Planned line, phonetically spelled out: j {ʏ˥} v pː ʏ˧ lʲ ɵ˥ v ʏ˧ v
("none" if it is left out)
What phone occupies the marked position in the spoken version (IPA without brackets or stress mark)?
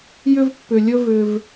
ʏ˥